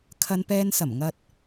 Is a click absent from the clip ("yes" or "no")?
yes